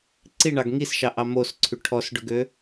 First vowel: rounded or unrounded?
unrounded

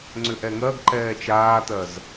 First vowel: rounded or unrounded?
rounded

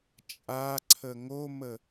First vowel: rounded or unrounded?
unrounded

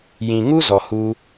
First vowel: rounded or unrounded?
unrounded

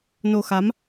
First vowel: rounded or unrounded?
rounded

